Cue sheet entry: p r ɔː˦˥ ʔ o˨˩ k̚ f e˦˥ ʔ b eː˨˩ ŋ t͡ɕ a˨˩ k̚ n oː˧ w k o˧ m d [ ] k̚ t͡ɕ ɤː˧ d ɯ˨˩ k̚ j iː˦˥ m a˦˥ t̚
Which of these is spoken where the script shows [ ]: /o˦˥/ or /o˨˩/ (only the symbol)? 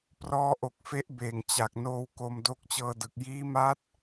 o˦˥